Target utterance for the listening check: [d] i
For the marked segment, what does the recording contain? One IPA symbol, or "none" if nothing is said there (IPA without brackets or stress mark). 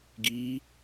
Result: ɡ